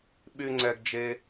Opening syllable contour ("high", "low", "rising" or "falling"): high